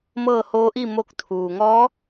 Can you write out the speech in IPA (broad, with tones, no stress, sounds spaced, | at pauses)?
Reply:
m ɤː˥˨ h oː˧˥ ʔ i˥˨ m o˧ k̚ t̪ʰ uː˩ ŋ ɔː˧˥